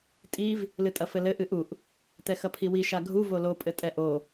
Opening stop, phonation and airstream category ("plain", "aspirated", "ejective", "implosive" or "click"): ejective